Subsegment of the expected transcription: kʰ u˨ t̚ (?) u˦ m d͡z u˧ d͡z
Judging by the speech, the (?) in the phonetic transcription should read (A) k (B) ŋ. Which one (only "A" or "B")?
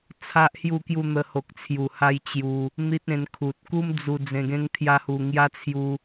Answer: A